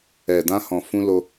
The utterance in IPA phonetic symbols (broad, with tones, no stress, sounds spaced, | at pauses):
ɛ˨ d ã˧ h ɔ̃˨ f ũ˧ l o˧